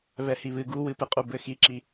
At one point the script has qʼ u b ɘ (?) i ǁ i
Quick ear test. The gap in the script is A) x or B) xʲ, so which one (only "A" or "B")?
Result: A